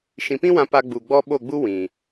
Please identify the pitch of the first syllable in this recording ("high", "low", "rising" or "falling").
low